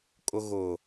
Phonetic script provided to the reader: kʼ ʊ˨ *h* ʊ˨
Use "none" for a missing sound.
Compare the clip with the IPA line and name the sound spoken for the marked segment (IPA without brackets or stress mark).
ɣ